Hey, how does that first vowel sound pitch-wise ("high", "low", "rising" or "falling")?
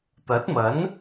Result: rising